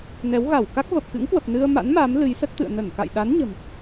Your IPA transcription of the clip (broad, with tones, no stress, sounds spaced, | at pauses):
n ɛ˨˦ w ɣ a˧˩ w k a˦˥ k̚ v ə˨˩ p̚ k ɨ̰˧˥ ŋ k w ə˨˩ p̚ n ɨ˧ ə̯ m a̰˧˥ n m a˨˦ m l ɨ˨˦ j s ə˦˥ t̚ t̪ ɨ̰˧˨ ə̯ n ə˧˩ n k a̰˧˨ j ɗ a˨˦ n ɲ ə̤˨˩ m